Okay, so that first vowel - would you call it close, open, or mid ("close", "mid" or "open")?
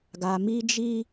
open